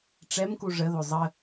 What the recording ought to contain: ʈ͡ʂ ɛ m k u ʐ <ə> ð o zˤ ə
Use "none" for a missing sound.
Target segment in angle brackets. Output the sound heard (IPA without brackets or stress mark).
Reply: ə